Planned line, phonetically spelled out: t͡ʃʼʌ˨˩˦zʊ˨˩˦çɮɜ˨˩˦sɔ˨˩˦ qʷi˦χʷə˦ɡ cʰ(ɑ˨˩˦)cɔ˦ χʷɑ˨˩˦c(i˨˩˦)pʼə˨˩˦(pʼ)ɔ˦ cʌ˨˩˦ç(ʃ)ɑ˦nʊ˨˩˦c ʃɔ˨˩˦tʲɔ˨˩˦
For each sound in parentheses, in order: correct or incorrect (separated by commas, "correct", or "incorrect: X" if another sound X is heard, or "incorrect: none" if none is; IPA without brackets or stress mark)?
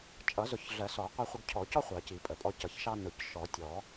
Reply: incorrect: ɔ˨˩˦, correct, correct, correct